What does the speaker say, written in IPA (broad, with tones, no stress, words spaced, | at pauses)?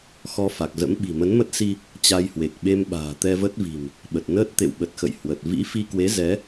xɔ˧ fa˨˩k̚zə̰˧˥m ɓi̤˨˩mə˨˦nmə˦˥t̚si˧ | t͡ɕa˧jhwe˨˩k̚ɓe˧mɓa̤ː˨˩ t̪ɛ˧və˦˥t̚vi̤˨˩m | ɓə˨˩t̚ nəː˦˥t̚t̪ḛ˧˨wɓə˨˩t̚xə̰˧˨j hwə˨˩t̚ vḭ˧˥fi˧kwe˨˦ zɛ˨˦